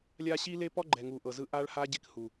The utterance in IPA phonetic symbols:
lʲ a˦ ɕ i˦ l e˦ p ɔ˦ ɡ͡ǃ ɛ˨ ŋ u˨ ʔ ɤ˨ z ɯ˦˨ ʔ a˦ ɭ h a˦ ɟ e˦ k h u˨

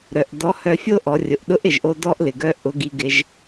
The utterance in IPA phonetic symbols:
ɾ œ˩ ʔ d ɔ˧˥ h œ˧ fʲ o˥ ʔ ɔ˩˧ rʲ ʊ˩ ʔ ɗ ʊ˧˥ ʔ ɪ˩ ʒ ʔ o˧ d ɔ˥ ʔ l ɪ˩ ɡ œ˥ ʔ ʊ˧˥ ɡ i˧ ɡ ɪ˧ ʒ

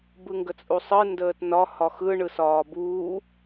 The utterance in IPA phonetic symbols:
b ɯ ŋ ɡ ə t͡sʼ u sˤ ɯ n d əː t n ɒ h ɒ x ɯ ɳ ɯ s ɒː b uː

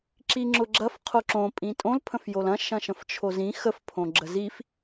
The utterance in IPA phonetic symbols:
ǁ i ŋ͡ǁ ʊ ɡ͡ǁ ɐ f qʰ o ǁ õ pʼ ĩ tʼ õ l pʰ ə̃ f j o l ɐ̃ ʃ ɐ̃ ʃ ə̃ f t͡ʃʰ o z ĩ x ə f pʰ õ ɡ͡ǁ ə z i f

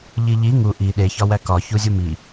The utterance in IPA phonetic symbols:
ʎ i ʎ i ŋ u ʔ i ɗ e ç ɒ w æ k ɒ ç u zʲ u m i

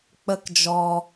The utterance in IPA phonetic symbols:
k͡p ə˦ k d͡ʒ ɔ˧

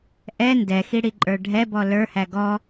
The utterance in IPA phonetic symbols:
ʔ ɛ n d ɛ x i ɽ i ǃʼ ə˞ ɖʱ ɛ b ɔ l ə˞ h æ ɡ ɔ

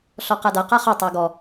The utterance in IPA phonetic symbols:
ɬ ɔ q a d a q a χ ɔ tˤ a ɡ ɔ

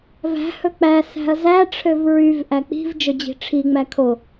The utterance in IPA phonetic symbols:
v æ̤ h ɵ k͡p æ s æ̤ ɐ̯ z æ ʈ͡ʂʰ ø v ɹ y v ʔ æ k͡p i̤ v d͡ʒ ɵ d͡ʑ i̤ ʈ͡ʂʰ i ŋ͡m æ kʰ o

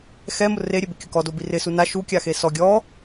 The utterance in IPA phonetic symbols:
x ɛ m ʊ r e ɾʲ e b ɪ kʲ ʊ k ɔ d o b i r ɪ s u n a ʃ u kʲ a x e s ɔ ɡʲ ɔ

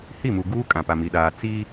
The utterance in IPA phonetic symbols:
h i˦˨ m u˨ ɡ uː˦ kʼ ã˨ p a˨ m i˨ ɗ aː˨ t͡s iː˦

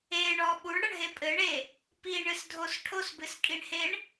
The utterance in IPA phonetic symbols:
e ɳ ɔ ɓ u ɳ ɽ ɐ ɳ ɦ e pʼ ɘ ɳ e | p i ɳ ɨ s dʱ o s ʈʰ o s b ɨ s kʼ i ɳ h e ɳ

